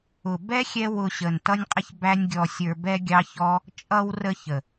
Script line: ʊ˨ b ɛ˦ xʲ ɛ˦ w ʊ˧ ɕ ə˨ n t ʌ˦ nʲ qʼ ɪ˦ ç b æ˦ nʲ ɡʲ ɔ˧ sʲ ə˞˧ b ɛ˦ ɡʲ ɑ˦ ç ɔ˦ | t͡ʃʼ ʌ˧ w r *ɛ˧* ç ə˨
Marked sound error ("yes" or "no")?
yes